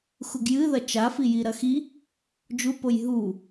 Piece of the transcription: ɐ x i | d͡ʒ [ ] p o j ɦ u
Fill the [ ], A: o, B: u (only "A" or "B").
B